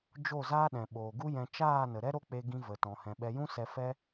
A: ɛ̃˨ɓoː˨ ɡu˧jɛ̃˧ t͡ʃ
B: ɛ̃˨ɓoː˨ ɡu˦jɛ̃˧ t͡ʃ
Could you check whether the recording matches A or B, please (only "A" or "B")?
B